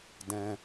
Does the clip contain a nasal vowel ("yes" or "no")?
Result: yes